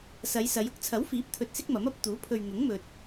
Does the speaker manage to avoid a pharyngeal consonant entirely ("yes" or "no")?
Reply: yes